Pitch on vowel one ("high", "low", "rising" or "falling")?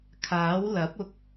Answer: rising